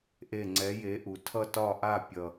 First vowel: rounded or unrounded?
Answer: unrounded